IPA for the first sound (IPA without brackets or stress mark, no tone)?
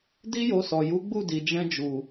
d